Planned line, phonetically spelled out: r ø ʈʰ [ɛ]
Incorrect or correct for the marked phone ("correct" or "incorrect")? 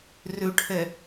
correct